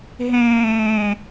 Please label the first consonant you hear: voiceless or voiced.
voiced